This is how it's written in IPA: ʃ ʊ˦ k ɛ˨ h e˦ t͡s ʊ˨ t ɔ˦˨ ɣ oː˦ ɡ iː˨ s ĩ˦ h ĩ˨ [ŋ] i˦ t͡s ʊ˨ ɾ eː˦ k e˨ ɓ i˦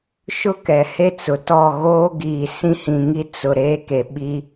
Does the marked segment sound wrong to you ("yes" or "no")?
no